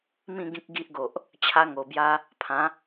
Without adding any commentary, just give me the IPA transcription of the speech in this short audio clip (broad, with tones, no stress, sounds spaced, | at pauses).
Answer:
m ĩ˥˧ ɡ ĩ˦ k̚ ɡ i˦ ʔ ɡ o˨ ʔ | t͡ɕʰ a˦ ŋ o˧ b j a˦ | pʰ ã˨˦